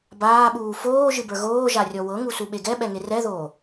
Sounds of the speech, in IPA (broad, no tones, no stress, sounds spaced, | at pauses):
b aː ɓ uː f oː ʒ ɨ b ə˞ ɣ oː ʒ a rʲ ɔ w ɤ ŋ u s u ɓ e ɡ ɛ ɓ ɛ ŋ e r ɛ ð oː